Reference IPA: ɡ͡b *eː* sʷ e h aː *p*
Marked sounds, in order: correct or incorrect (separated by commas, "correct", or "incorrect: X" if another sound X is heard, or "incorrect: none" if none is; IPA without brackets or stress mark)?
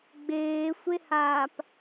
correct, correct